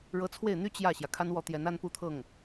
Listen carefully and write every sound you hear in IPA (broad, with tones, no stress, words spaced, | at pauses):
ɻɤ˧˥t͡sʰwe˥˩ɪ̯n̪y˥ t͡ɕjä˥˩ɕjä˩ kʰa˥nwɔ˥˩t̪jɛ˧˥n a˥npu˥˧t̪ʰɤ˥˩ŋ